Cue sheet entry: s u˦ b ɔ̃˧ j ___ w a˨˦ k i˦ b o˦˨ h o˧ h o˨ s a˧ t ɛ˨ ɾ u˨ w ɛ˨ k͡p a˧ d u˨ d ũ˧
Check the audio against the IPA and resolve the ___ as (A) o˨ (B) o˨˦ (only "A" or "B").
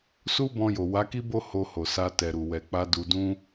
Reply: A